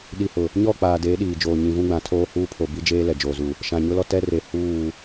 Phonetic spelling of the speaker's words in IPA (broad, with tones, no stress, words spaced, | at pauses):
ɗi˨hʊ˨ | ɲɔ˦˨k͡paː˨ deː˨˦ɗiː˨d͡ʒoː˨ ɲĩ˨vũ˦ɡ͡bã˨tʰoː˦ huː˦pʰo˨bi˦d͡ʒeː˦ lɛ˨d͡ʒoː˨zu˨ | ʃã˨ ɲʊ˦lɔ˦ tɛ˦re˨ huː˦˨